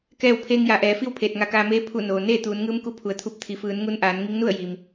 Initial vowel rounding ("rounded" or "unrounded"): unrounded